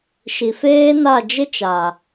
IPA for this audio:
ʃi˨feː˦na˦˨ d͡ʒɪ˦t͡ʃa˨

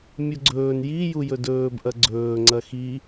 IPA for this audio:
mʲuɡ͡ǀɵːn ji jujɵdɵːb ʔɐɡ͡ǀɵː ŋ͡ǀɐxi

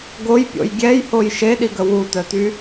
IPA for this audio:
ɡojpʲo̰j ɡʲɛjhoj ʃeɗiɡə wutœty

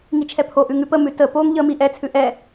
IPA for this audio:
ŋit͡ʃʰɛpʰoʔʉ ŋʉpəmʉ tə poŋ ʎəmi ʔɛt͡sʰʉ ʔɛ

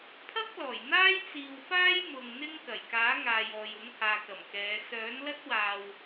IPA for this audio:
pʰɐ˥k̚ lɔː˨˩j n̪aː˥jt͡siː˨wfaː˥j mʊ˨ŋn̪ɪ˥ŋ kɐ˨˩jkaː˨˥ŋaː˨jɔː˨j ʊ˨˥ŋhaː˨kɐ˨˩mkɛː˨˧ sœː˨˥nlɐ˥t̚waː˨w

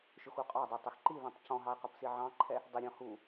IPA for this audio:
ʃʊxuqʼɑdˤə˞ tˤəxǃiðɔ̃tˤ cɔ̃ɦɑɪ̯ qʌpsiʕɑ̃ǃʰɛ | dˤəɾʲɔ̃ hu

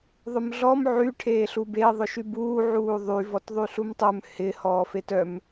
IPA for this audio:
ðˤʊmɮɔm ʕy ʈʰeːɬube ðˤʊʃybuː ʕuːðˤy vɔtðˤyɬumtˤœm hɪ hɔːfetœm

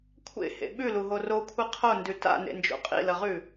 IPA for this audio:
kʷʰḛhḛ ɓʉluɦo rokʷʰi qʰondʉ ta̰nḛnd͡ʒo̰ qʼḭlɐʁʉ

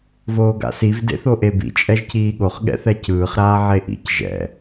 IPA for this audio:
voːɡa̰siv dḛθoʔebḭ t͡ʃʼɛʒciːɠoχ ɠɛ̰θɛcɯːχ ɾaːʕeʔḭc ʒɛ̰

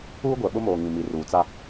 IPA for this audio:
uː˦ɡʷɛ˨ɓʊ˦moː˨ ŋĩ˨mi˨ ruː˨t͡sa˦

